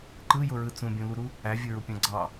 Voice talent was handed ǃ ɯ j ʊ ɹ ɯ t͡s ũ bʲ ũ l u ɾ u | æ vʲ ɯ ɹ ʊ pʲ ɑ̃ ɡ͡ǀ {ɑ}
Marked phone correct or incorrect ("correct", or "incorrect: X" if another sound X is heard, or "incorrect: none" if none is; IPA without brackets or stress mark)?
correct